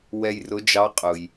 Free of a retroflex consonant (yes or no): yes